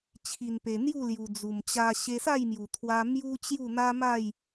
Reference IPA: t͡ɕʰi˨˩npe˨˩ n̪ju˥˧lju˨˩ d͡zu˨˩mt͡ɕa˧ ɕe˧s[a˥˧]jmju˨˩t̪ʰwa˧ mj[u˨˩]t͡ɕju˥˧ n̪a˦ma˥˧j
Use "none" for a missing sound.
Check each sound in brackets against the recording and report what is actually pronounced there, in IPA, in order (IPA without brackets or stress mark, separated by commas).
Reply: a˥˧, u˦